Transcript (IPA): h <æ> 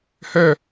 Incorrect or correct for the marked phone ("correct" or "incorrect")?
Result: incorrect